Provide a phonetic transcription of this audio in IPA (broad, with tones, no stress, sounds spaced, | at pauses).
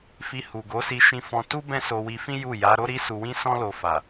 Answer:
f i˧ h u˨ ɡ o˨˦ s i˧ ʃ ĩ˧ f ɔ̃˧ t u˦ b ɛ̃˦ s o˧ w i˧ f ĩ˦ j u˦˨ j a˨˦ ɾ o˦ ɾ i˦ s u˧ w ĩ˦ s ɔ̃˦ l o˧ f a˨